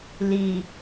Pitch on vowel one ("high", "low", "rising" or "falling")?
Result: low